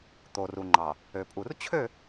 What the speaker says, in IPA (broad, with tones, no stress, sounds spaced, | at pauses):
t̪ o˨ r u˨ ŋ͡ǃ ɑ˨ | ø˨ pʼ u˨ r t͡ɕʰ ø˦˨